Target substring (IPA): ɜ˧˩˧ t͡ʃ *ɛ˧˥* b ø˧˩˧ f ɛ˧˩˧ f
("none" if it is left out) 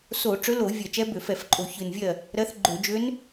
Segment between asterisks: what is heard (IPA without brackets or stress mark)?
ɛ˧˥